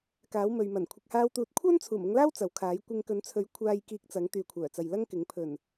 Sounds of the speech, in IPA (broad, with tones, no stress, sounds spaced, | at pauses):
k aː˨˥ w m ɵ˨ ɥ m ɐ˨˩ n kʷʰ ɪ˨ k̚ h aː˧ w t̪ uː˨ t̚ kʷʰ œː˥ n t͡sʰ uː˨˩ m ʊ˧ ŋ l aː˥ w t͡s ɐ˨˥ w kʰ aː˨˥ j kʷ ɪ˧ ŋ k ɵ˨˥ n t͡sʰ ɵ˨˥ ɥ kʷʰ aː˨ j k iː˧ k̚ t͡s ɐ˨˥ ŋ t̪ yː˨ kʷʰ œː˨˩ t͡s ɐ˨ j l ɐ˥ ŋ k ɪ˨˥ ŋ pʰ ɵ˨˩ n